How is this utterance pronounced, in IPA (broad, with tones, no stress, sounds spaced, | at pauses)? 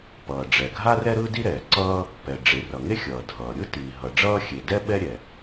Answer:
p ʌː˩ ɖ͡ʐ ɛ˩ ɡʱ a˥ r ɛ˥ ɾ ɯ˥ d i˥ ɾ ɛː˩ ǀ ʌː˥ | p ɛ˩ ɖ͡ʐ e˩ r ʌ˩ ŋ e˥ xʲ ʌː˩ dʱ ʌː˩ ɾʲ ɯ˥ t i˩ ɦ ʌ˩ ɖ͡ʐ ʌː˥ xʲ e˩ d ɛ˥ ɓ ɛ˥ ɾʲ ɛ˩